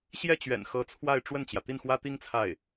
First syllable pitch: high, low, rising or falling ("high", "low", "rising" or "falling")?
falling